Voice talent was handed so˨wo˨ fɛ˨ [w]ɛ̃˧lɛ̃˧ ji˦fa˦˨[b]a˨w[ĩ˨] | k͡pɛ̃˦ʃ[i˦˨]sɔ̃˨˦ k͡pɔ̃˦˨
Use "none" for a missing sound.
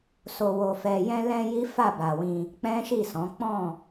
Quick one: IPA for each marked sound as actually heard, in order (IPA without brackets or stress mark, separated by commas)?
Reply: j, b, ĩ˧, i˦˨